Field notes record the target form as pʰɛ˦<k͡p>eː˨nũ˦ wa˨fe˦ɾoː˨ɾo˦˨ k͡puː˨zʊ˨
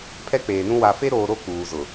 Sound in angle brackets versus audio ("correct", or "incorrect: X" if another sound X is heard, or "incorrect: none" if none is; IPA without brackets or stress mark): correct